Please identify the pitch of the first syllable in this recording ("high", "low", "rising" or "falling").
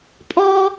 high